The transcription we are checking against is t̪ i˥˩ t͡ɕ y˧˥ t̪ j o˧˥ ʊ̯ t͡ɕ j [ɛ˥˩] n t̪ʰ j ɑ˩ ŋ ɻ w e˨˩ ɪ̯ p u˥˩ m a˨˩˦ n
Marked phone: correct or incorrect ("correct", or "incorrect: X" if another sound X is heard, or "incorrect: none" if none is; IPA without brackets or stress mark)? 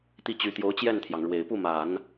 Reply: correct